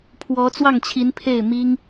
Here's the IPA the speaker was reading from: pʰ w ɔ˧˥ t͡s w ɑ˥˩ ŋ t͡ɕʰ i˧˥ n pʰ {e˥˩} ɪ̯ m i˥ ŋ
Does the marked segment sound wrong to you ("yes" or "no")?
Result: no